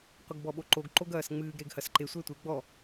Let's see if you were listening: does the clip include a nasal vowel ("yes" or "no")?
no